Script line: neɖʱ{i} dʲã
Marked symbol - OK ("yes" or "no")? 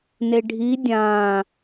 yes